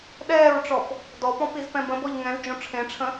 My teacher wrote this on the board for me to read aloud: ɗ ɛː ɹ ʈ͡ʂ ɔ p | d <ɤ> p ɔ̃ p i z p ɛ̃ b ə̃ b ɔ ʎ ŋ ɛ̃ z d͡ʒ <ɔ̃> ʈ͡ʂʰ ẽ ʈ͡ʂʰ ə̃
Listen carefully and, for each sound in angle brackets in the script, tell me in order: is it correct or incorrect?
incorrect: ɔ, incorrect: õ

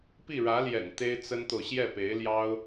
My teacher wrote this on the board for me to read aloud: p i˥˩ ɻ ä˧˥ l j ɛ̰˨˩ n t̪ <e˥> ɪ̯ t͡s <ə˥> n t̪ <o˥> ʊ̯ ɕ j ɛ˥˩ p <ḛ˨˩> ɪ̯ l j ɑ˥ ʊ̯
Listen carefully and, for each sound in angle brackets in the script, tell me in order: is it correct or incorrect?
correct, correct, incorrect: o˨, incorrect: e˧˥

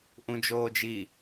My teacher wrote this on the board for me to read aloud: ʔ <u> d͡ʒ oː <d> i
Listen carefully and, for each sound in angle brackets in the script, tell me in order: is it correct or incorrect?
incorrect: ũ, incorrect: d͡ʒ

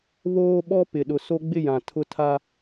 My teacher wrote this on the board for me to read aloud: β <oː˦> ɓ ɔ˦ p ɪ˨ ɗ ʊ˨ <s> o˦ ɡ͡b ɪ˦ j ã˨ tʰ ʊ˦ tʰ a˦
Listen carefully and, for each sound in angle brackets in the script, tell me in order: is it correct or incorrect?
correct, correct

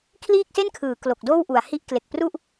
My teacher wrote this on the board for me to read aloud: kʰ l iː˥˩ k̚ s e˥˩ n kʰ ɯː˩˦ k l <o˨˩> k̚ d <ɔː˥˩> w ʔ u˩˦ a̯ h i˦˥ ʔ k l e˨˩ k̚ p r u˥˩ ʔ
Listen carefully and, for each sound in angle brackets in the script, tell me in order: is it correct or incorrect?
correct, incorrect: oː˥˩

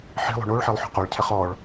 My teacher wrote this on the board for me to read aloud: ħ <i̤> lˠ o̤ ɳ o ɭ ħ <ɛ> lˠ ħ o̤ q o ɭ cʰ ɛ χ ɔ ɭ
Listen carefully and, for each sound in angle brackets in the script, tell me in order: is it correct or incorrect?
correct, correct

